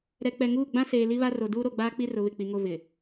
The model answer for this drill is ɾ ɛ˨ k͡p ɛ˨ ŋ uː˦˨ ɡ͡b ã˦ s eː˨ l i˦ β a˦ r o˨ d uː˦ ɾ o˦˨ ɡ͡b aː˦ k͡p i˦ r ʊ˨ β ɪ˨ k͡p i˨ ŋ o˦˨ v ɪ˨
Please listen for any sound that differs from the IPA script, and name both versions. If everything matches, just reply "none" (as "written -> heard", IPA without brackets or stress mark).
none